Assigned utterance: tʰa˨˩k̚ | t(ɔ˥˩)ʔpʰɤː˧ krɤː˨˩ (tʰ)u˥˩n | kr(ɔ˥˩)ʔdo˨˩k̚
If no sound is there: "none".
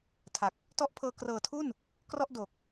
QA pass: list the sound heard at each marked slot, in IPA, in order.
ɔ˦˥, tʰ, ɔ˥˩

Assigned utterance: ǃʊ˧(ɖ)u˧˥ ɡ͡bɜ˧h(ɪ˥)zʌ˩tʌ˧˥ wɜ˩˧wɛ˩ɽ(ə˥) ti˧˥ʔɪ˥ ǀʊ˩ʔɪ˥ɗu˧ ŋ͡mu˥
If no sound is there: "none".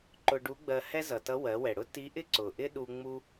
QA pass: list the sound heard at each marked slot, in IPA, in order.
ɖ, ɛ˥, ʊ˥

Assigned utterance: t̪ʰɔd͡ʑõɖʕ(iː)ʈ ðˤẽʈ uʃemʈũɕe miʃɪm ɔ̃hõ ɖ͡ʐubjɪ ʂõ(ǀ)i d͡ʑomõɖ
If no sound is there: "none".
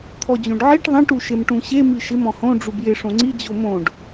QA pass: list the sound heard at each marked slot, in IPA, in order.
i, ŋ͡ǀ

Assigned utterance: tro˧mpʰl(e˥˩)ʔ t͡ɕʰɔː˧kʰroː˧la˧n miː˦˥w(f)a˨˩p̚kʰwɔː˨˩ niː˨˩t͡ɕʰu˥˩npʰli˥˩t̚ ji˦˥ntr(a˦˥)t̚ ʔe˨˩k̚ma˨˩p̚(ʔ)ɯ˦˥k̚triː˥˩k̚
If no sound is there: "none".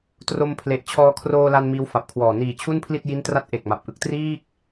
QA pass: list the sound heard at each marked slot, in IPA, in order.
e˨˩, f, a˦˥, ʔ

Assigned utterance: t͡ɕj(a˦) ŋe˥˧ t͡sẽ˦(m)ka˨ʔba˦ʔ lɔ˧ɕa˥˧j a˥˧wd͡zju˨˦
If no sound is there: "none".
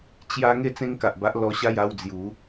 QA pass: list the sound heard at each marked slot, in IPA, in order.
a˦, ŋ

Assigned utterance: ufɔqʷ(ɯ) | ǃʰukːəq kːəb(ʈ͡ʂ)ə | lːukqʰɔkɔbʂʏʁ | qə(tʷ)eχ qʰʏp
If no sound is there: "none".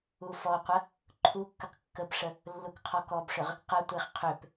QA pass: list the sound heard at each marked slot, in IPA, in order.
ə, ʂ, tʷ

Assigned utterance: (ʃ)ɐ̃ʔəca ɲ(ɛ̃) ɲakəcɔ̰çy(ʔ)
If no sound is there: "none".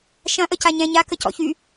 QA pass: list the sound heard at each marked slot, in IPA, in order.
ʃ, ɛ̃, none

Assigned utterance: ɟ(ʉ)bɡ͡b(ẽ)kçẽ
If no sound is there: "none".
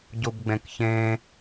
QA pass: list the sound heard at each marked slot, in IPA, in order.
u, ẽ

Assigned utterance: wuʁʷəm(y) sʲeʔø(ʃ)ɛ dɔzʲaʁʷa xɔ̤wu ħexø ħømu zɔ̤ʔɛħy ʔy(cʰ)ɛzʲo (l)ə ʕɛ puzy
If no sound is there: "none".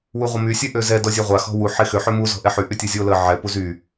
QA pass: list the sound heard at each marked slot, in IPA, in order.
y, z, tʲ, l

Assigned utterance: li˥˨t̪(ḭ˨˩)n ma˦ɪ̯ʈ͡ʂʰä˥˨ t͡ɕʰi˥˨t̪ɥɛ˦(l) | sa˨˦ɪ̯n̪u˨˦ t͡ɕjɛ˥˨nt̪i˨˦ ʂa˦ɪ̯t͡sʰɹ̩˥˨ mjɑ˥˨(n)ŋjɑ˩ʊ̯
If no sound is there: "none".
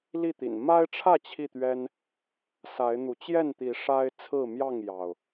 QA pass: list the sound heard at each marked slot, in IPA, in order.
ḭ˨˩, n, none

